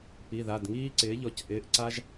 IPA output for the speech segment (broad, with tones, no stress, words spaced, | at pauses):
pi˩˧˩ða˩˧˩dŋiː˥ǀɪː˩˥ ʎɔ˩˥cʔɪː˩˧˩ʔǀa˥ʒ